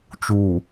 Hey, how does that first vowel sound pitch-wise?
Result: low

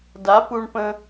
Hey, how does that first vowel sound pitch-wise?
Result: rising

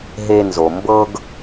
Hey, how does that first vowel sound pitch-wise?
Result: high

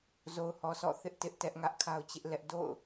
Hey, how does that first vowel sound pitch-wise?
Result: low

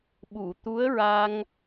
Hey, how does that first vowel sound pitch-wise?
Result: low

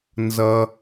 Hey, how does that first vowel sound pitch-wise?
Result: low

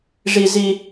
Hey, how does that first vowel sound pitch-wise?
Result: high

